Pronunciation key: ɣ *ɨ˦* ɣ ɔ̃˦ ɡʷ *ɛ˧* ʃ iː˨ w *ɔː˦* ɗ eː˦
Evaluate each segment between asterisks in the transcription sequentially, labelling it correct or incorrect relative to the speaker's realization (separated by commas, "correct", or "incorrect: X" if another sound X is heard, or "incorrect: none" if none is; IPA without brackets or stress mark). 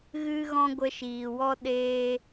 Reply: correct, incorrect: ə˧, incorrect: ɔ˦